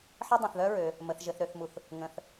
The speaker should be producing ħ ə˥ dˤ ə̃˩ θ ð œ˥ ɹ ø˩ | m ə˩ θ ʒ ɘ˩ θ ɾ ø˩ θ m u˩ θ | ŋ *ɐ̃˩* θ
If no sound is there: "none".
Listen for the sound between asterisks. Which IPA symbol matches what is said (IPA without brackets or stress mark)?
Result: ə̃˩